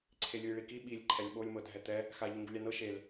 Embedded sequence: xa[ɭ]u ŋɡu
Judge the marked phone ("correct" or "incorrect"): incorrect